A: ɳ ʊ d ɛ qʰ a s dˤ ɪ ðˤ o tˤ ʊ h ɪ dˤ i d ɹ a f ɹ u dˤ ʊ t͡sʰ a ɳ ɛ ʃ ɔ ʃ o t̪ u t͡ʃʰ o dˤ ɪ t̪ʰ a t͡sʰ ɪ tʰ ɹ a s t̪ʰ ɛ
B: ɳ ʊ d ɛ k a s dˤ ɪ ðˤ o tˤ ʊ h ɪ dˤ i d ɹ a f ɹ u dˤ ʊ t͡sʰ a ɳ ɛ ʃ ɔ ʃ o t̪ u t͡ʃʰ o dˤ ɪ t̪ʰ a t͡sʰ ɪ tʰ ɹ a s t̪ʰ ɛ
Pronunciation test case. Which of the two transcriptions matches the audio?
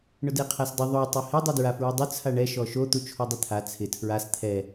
A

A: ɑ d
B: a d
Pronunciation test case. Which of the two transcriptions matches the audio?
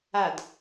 B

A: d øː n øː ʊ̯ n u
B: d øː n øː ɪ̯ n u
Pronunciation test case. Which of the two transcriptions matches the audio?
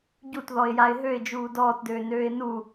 B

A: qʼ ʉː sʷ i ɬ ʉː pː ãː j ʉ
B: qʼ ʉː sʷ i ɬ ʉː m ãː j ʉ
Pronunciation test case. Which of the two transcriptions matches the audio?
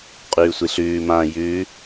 B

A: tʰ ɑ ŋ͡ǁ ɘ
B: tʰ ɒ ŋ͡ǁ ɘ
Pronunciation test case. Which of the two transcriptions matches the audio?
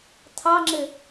A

